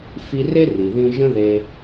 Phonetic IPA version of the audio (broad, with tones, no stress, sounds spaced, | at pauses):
f i˧ r e˦ r i˨ ð ĩ˦ ʒ ə̃˦ ð e˧